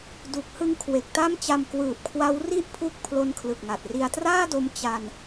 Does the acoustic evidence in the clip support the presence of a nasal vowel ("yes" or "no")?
no